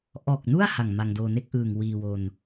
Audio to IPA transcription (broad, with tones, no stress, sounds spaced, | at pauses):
ʔ ɔː˨˩ k̚ n u˥˩ a̯ h a˨˩ ŋ m a˧ ŋ d oː˧ n e˥˩ k̚ ʔ ɯː˨˩ ŋ w iː˧ w o˧ n